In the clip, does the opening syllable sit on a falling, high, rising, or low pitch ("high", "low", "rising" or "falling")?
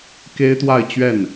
high